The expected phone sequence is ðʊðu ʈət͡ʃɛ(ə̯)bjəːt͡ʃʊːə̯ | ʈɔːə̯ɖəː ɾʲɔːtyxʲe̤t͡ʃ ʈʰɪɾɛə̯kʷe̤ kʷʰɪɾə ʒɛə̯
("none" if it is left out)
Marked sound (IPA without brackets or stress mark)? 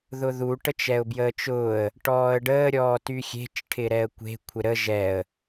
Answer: ʊ̯